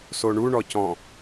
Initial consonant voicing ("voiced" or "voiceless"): voiceless